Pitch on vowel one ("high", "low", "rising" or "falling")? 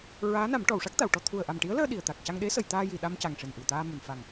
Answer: rising